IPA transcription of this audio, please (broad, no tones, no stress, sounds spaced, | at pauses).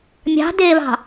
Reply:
mʲ ɑ̤ d eː β ɑ̤